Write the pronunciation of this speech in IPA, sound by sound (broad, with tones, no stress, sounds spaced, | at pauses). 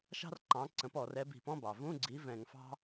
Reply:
ʃ ɑ̤˥ r ǃ ɑ̃˨˥ ǀ ə̃˨˥ p ɔ˧˩˧ r ɛ˨˥ b i̤˧˩˧ p ɔ̃˧˥˧ b ɑ˩ v ũ˧˥˧ ɡ͡ǀ i˨˥ v ɛ̃˧˩˧ ŋ f ɑ̤˥